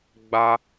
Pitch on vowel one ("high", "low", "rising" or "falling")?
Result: high